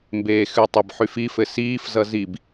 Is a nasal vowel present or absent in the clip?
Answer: absent